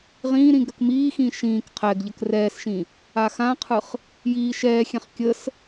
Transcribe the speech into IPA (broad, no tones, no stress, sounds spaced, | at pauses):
ʁ ĩː ɾ ĩ ɡ ɾ ə k m iː x ĩː ʃ ĩː k qʰ ɛ ɡ ʎ ə k r ɛː s ʃ ĩ | a x ã qʰ ɯ χ | j iː ʃ ɛː xʲ ɛ̃ χ kʲ ə s